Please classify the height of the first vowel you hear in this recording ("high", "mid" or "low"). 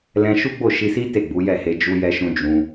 mid